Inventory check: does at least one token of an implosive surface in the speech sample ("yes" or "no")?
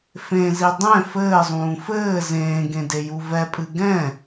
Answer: no